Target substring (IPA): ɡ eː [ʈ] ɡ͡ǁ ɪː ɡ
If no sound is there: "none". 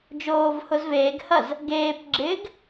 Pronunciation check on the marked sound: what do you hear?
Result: p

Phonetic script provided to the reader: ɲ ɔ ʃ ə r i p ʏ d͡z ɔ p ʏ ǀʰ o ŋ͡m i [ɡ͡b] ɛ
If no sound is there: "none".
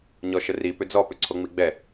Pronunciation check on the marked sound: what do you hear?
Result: ɡ͡b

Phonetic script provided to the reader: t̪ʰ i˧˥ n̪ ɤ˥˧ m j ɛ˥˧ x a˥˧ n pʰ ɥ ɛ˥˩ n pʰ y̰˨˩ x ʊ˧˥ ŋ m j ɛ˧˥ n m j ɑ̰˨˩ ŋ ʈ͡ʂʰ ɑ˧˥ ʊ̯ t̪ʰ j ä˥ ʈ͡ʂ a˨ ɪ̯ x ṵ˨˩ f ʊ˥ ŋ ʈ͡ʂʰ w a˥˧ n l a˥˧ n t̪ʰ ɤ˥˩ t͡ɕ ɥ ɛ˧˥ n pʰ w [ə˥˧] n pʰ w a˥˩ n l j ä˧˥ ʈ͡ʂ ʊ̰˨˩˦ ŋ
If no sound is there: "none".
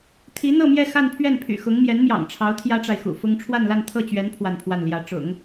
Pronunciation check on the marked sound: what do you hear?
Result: a˥˧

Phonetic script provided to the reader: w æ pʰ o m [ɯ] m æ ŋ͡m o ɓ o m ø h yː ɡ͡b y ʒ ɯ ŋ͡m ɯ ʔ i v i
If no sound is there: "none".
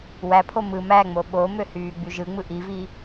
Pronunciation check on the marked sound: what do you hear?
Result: ɯ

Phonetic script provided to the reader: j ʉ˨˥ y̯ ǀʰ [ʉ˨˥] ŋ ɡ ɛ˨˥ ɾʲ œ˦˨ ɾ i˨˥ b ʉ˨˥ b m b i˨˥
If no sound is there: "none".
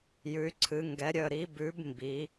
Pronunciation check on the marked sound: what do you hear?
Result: ɨ˨˥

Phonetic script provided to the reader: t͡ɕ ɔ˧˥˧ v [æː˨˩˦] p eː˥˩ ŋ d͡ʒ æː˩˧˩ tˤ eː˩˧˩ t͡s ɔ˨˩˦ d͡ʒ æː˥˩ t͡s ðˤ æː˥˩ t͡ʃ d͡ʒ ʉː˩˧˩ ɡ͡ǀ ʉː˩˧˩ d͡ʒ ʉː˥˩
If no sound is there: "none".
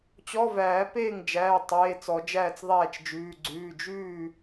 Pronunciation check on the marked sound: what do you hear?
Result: æː˨˩˦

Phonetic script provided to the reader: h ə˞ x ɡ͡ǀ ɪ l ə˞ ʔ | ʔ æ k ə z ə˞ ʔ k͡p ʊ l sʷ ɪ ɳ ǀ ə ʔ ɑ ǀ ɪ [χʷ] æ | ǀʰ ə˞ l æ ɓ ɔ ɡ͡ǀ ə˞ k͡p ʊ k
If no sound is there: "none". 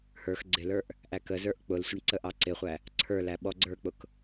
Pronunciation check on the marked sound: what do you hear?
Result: χʷ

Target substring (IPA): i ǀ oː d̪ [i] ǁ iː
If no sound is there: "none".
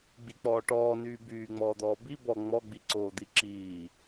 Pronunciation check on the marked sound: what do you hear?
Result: i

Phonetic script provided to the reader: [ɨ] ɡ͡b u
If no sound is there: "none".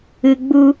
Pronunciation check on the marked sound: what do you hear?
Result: ɨ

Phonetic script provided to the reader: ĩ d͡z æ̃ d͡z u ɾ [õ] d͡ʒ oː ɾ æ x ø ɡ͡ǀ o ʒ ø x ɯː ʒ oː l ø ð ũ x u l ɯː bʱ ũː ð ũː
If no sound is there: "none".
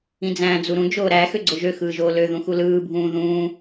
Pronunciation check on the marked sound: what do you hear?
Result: ũ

